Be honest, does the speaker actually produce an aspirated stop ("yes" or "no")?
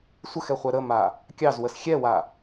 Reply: no